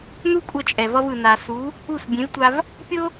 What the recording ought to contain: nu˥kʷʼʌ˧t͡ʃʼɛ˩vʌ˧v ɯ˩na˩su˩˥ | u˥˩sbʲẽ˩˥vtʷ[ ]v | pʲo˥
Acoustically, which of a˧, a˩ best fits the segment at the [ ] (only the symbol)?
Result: a˧